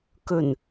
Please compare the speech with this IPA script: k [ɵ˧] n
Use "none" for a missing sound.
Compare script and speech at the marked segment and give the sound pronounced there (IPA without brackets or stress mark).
ɵ˨˩